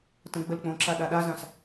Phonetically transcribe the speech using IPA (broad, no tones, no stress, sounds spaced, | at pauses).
t ə̃ ɡ͡b ə l k͡p õ ǁ a ɗ a ɗ a z ã s